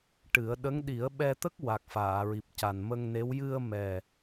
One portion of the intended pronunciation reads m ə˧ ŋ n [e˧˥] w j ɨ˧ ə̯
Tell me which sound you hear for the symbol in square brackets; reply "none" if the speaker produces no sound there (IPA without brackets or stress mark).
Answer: e˧˥